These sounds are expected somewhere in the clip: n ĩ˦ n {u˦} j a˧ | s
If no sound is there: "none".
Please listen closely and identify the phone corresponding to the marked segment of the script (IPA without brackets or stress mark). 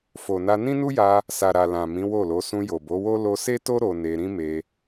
u˦